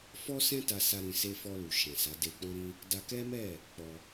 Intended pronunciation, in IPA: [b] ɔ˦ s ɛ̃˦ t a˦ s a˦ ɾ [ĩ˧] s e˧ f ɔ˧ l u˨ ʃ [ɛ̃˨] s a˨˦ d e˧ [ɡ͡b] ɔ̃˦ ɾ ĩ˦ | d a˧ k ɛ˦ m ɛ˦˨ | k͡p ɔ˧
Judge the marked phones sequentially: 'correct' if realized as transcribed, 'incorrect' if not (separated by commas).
incorrect, correct, correct, incorrect